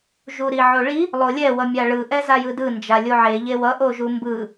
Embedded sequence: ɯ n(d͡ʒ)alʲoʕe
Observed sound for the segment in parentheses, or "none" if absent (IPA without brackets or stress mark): d͡ʒ